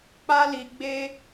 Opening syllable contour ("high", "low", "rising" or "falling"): high